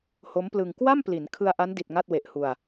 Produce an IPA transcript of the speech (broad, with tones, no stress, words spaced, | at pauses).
ho˦˥mplɯ˧ŋ kwa˥˩m pli˩˦n kʰɯ˧a̯ʔa˦˥ndi˨˩t̚ ŋa˥˩t̚we˨˩ʔhu˧a̯